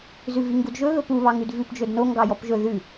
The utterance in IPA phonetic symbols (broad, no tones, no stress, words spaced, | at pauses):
zʉviŋɡudʒɵ ɣɵpu βɑŋʉdvʉp d͡ʒɵdno ŋɡɑjɔpʒɵ ðʉ